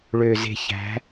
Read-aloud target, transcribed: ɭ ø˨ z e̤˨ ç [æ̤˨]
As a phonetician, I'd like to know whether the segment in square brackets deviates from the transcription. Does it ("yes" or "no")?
yes